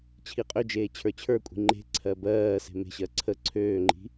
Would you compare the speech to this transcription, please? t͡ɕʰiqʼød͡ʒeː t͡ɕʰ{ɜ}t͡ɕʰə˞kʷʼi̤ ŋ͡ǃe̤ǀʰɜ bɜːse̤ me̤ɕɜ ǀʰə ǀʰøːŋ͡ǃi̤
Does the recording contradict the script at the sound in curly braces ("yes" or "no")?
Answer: yes